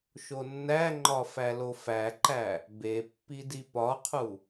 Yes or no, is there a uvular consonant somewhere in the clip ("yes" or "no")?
yes